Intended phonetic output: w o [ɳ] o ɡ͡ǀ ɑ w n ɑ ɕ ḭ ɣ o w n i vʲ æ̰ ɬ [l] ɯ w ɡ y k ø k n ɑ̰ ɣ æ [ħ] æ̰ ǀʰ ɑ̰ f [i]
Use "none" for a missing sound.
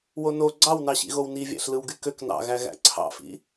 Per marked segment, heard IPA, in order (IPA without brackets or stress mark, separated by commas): n, l, ɣ, ḭ